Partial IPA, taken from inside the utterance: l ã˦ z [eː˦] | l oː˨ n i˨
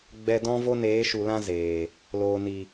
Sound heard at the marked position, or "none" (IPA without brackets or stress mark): eː˨